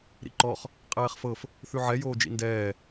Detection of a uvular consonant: present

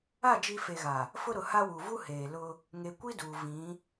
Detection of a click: absent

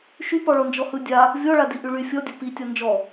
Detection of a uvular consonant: absent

